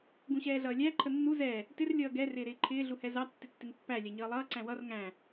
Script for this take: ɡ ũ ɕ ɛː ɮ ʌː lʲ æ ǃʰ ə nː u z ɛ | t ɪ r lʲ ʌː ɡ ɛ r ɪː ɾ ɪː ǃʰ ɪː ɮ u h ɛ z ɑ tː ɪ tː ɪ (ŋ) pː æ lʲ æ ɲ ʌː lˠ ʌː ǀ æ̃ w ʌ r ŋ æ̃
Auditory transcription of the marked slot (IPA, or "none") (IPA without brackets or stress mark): ŋ